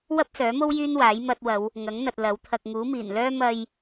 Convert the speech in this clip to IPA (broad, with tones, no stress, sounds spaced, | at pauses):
w ɐ˥ p̚ s œː˨˥ m o˥ w j yː˥ n w aː˨˥ j m ɐ˧ t̚ w ɐ˨˧ w | ŋ ɐ˨˥ ŋ n̪ ɐ˨ t̚ l ɐ˨˥ w t̪ʰ ɐ˨ k̚ ŋ uː˨˥ m iː˨˩ n l œː˥ m ɐ˧ j